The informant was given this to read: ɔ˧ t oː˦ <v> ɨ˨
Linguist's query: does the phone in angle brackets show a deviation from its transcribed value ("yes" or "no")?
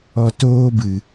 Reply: yes